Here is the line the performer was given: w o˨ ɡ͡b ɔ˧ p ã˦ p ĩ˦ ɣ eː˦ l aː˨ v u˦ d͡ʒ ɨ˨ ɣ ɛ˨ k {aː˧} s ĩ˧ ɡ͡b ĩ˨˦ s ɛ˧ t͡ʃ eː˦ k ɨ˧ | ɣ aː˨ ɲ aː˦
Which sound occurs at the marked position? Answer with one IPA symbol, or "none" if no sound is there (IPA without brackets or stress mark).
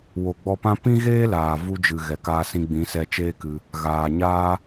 aː˧